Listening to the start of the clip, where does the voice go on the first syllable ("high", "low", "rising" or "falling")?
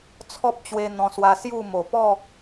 high